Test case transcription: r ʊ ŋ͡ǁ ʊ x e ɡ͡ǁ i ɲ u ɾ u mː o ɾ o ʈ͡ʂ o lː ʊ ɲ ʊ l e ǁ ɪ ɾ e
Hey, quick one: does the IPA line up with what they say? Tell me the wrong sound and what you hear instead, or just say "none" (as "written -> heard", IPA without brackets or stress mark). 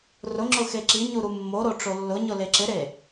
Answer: ɡ͡ǁ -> ǁ